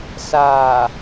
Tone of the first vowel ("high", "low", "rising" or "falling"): low